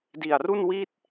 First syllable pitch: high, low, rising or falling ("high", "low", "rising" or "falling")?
low